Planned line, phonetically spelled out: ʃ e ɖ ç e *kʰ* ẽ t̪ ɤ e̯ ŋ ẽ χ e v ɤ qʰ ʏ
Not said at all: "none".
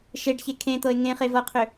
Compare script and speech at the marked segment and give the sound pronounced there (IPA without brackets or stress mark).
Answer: kʰ